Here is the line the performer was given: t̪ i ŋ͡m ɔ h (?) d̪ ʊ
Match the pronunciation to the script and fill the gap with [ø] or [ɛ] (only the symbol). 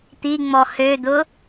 ø